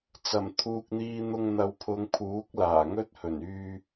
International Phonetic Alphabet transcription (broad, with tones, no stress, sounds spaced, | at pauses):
t͡s ɐ˨˩ m t̪ʰ uː˨ k̚ n̪ iː˧ n̪ ʊ˧ ŋ n̪ ɐ˨˧ w pʰ ʊ˨˧ ŋ pʰ uː˨˥ k̚ l aː˨˩ ŋ ɵ˥ t̚ h ɵ˨˩ n yː˥